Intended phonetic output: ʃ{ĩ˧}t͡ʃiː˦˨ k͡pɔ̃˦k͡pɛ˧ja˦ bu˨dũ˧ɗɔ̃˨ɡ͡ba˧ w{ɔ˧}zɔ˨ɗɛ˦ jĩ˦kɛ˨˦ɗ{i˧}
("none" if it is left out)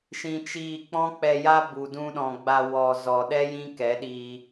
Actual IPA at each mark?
ĩ˧, ɔ˨, i˧

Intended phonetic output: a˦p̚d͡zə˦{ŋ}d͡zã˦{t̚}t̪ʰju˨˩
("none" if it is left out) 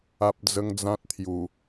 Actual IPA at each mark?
ŋ, t̚

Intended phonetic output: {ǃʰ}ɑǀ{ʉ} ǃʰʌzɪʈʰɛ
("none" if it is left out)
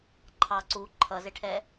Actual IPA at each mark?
ǃʰ, u

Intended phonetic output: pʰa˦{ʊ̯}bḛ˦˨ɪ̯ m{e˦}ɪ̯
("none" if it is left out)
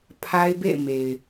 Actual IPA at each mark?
ɪ̯, e˨

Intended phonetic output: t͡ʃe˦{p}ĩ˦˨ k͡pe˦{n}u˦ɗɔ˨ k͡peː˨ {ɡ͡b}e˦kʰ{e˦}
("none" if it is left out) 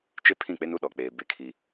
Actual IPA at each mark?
pʰ, n, b, i˦

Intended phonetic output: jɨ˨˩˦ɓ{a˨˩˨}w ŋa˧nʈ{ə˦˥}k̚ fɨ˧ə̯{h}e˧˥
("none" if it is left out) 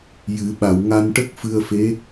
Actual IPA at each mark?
a˨˩˨, ə˦˥, f

